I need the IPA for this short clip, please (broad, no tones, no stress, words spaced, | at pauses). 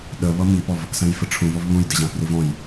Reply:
ɗə βʌmipɔv | sæ̃jfəʈ͡ʂʰũvɔv βũjdɪʑæ̃ privɔ̃j